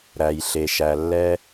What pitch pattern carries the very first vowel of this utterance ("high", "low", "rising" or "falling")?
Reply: low